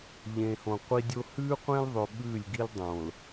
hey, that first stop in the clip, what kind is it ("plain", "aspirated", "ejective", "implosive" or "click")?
plain